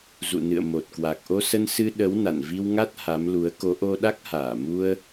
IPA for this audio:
zṵ˧˨nɨ̰˧˨ə̯ mo˨˩t̚kwa˨˩k̚ʔo˧sə˧n sɨ˧ɗə˨˦w na̰˧˨nvi˧wŋa˦˥t̚ ha˨˦mlu˨˦ə̯ ko˨˦ʔo˧ɗa˦˥k̚ haː˧˩mu˧ə̯

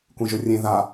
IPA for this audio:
kʷẽʒɵrʲẽ ða

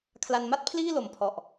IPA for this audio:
kʰla˧nma˥˩t̚pʰliː˥˩ lo˨˩m pʰɔ˨˩ʔ

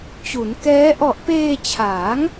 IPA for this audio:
t͡ɕu˩˦nkɛː˦˥ ʔɔ˨˩ʔpeː˧t͡ɕʰaː˩˦ŋ

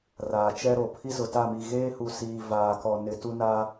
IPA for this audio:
raː˨t͡ʃɛ˦ɾo˨ pʰi˦zʊ˨ta˦˨mi˨ ɣeː˦hu˨ siː˨ vaː˨kɔ˨ nɪ˨tu˦naː˦

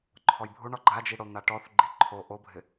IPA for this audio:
ǃʰɔjbʱuɳɔ ɡ͡ǃad͡ʒi ɽon̪aʈɔθɡ͡ǃi ǃʰo ʔobʱɪ

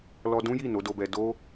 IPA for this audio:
lɔ˧dũ˦ji˦˨ no˨˦do˧bɛ˧ do˦

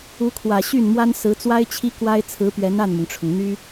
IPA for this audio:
u˧˥kʰwä˨˩ɕy˥˩nmwa˥n sɹ̩˧˥t͡swa˥ɪ̯ t͡ɕʰi˥ kwa˥ɪ̯t͡sʰɹ̩˧˥pɥɛ˧˥n a˥˩nmʊ˩ŋʈ͡ʂʰʊ˩ŋ n̪y˥

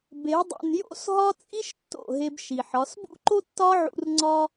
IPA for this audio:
be˨˦ dˤṵ˨njo̰˦sɦɒ˦ t͡sʼi˦ʃ tːo̰˦˨ɦe˧bʃi˨ħɒ˨˦s bṵ˦ǃo˦tːɒ˦ʕṵ˧r ŋ͡ǀɒ˦

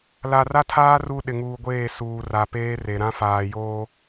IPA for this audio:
la˨ra˦tʰaː˦ ru˦ ɗɪ˨ŋuː˨ɡʷeː˦˨ suː˨ra˨ peː˦re˨ ɾã˦faː˨joː˦

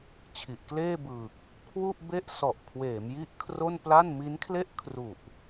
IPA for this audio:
t͡ɕʰi˨˩ʔkleː˥˩bɯː˨˩k̚ | kʰwu˥˩ʔbe˥˩ʔ sɔ˨˩ʔkʰweː˩˦mji˦˥ʔ kʰro˥˩npla˥˩n mi˦˥nkʰle˥˩ʔkʰru˨˩ʔ

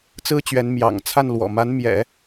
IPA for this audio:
t͡sɹ̩˥t͡ɕɥɛ˧˥n mjɑ̰˨˩ŋt͡sʰa˥˩n lwɔ̰˨˩ma˧˥n mjɛ̰˨˩˦

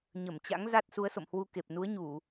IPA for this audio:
ɲə˧˩mt͡ɕa̰˧˥ŋ za˦˥t̚su˨˦ə̯so̰˧˨mhwu˧ ke˨˩p̚nu˨˦ə̯ɲu˧˩˨

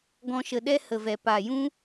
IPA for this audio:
ɡɔ̃˧ʃə˨ɗɛ˦ hə˨vɛ˨ paː˨jũ˦

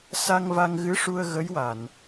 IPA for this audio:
sa˧ŋva˧ŋɣɨ˧˥ʂu˧ə̯ ɣə˧˥jwa˨˩˨n

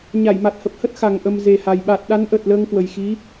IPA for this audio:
ɲa˧˩jma˨˩t̚hə˨˩p̚hə˦˥t̚ xa˨˩ŋ ʔə˨˩m ze˨˩ha˨˩j ɓa˨˩t̚ɗa˨˦nʔə˨˩t̚ ləː˧ŋkwə˨˩jxi˨˦

